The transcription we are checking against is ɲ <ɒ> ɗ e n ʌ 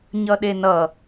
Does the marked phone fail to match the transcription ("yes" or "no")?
yes